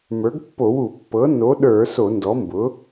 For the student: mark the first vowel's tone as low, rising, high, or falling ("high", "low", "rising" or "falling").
rising